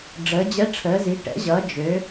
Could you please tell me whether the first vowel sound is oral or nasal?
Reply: oral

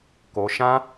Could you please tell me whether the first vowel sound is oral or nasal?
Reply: oral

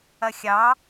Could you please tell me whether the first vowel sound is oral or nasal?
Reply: oral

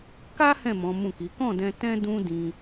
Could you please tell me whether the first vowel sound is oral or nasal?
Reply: oral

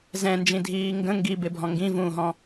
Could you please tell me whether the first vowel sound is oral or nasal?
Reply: nasal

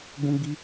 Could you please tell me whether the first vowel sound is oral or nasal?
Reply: nasal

